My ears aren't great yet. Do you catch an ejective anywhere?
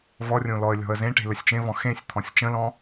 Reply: no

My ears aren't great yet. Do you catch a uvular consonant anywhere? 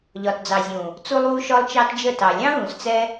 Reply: no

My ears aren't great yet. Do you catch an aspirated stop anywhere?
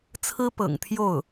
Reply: yes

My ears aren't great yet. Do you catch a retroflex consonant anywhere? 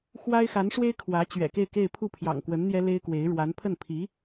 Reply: yes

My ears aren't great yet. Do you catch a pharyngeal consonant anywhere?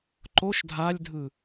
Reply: no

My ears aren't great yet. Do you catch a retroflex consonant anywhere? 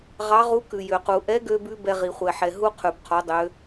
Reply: no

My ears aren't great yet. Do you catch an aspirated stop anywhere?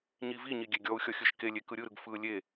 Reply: no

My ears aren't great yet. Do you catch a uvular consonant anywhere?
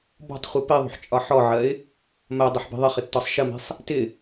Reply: yes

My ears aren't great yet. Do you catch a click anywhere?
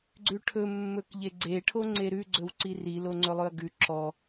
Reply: yes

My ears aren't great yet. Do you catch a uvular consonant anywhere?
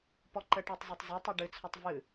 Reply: no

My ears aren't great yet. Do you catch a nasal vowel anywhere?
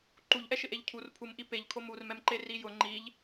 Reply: no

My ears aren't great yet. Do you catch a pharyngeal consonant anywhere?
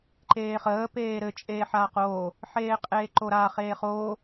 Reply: yes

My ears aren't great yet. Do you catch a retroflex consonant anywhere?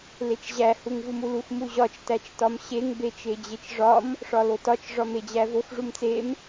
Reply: yes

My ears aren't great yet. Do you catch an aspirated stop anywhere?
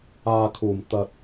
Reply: yes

